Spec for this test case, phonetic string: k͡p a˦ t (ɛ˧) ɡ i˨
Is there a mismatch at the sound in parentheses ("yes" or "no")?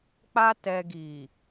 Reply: no